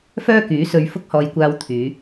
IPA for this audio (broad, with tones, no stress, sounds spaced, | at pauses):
f œː˥ k yː˨˥ s ɵ˧ ɥ f ʊ˥ k̚ h ɔː˧ j kʷ aː˧ w t̪ʰ yː˨˧